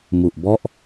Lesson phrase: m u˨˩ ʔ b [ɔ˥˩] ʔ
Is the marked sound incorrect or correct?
correct